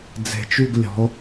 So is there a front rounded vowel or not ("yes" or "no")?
yes